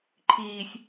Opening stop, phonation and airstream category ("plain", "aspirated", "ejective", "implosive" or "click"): click